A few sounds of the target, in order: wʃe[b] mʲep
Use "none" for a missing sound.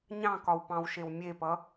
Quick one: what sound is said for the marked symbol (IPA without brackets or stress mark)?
w